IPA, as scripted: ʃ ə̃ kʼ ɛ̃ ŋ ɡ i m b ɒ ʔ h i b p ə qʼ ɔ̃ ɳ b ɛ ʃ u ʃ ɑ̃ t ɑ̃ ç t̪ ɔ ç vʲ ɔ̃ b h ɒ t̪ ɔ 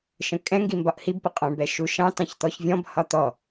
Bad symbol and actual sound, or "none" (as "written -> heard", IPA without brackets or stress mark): none